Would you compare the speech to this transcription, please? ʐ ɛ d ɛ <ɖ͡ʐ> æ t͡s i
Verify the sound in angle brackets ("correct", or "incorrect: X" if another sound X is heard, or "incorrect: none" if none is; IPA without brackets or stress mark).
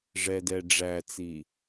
correct